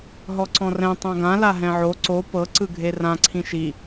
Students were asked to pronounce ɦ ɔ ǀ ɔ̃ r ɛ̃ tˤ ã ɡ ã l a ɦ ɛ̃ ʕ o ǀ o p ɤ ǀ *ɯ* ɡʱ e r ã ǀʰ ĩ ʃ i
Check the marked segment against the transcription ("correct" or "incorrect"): correct